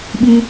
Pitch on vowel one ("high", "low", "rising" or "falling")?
high